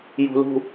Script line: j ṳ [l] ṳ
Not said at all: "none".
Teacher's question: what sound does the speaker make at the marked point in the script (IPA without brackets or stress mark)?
l